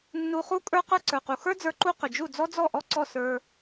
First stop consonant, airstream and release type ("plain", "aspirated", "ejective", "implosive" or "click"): ejective